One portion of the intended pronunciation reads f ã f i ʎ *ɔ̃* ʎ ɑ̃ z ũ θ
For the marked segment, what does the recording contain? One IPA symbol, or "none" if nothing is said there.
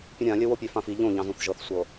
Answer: õ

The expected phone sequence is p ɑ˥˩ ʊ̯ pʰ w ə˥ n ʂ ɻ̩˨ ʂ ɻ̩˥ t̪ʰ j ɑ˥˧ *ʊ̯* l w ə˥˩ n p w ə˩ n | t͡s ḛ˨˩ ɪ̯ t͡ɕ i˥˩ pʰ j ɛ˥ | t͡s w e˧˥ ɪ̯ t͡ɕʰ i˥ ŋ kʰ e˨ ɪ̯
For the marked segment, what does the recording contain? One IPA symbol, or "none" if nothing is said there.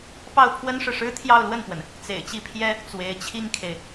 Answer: ʊ̯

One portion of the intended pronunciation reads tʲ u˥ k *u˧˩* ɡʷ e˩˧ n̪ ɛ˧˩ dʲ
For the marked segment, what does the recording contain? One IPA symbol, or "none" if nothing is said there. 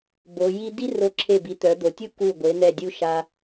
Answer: u˧˩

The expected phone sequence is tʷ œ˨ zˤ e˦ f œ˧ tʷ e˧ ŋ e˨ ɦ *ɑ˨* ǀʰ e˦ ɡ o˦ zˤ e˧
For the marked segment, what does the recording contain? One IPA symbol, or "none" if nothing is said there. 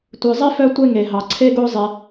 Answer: ɑ˨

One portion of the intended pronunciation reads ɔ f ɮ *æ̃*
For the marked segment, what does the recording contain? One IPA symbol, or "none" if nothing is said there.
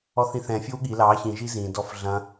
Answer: ɐ̃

